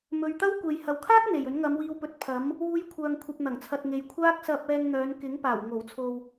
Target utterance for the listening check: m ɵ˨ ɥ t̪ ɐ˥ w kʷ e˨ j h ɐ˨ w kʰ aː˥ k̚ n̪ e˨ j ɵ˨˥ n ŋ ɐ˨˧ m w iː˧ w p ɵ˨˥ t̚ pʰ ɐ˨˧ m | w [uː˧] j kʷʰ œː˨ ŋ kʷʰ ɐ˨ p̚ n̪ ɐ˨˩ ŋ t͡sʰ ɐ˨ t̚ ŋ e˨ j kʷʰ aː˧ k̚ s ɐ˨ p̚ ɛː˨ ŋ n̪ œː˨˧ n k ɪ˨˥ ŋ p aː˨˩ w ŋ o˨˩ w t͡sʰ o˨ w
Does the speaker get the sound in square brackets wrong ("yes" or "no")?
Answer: no